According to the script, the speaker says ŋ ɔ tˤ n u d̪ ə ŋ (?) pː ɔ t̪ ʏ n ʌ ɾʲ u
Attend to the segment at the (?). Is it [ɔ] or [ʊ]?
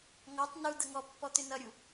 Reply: ɔ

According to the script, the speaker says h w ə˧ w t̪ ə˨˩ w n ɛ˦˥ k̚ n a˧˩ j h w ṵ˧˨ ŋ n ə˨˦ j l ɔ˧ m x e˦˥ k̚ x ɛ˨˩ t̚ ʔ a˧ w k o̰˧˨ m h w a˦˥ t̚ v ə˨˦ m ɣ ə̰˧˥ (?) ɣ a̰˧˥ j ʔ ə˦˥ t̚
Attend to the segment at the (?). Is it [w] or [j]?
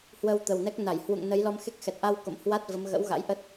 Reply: w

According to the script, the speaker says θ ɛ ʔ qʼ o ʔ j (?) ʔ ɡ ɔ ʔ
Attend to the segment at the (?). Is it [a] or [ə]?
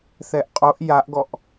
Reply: a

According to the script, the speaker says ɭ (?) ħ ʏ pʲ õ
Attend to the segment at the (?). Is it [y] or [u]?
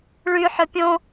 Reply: y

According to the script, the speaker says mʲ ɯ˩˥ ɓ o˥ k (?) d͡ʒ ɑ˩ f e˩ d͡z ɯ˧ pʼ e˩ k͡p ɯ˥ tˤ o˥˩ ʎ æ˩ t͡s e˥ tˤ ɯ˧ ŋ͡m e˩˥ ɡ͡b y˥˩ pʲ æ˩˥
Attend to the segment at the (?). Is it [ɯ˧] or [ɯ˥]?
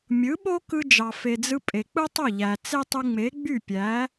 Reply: ɯ˧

